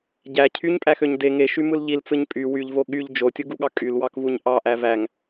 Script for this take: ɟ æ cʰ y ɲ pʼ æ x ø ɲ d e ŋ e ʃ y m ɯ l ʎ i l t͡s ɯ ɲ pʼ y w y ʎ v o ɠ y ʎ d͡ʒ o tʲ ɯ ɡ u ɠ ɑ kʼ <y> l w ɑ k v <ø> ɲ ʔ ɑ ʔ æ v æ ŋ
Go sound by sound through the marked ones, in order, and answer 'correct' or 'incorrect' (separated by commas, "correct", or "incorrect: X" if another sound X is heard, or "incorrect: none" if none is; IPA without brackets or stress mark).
correct, incorrect: u